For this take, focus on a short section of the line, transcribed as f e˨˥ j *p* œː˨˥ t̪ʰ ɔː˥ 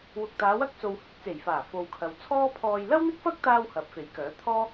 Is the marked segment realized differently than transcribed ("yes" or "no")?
yes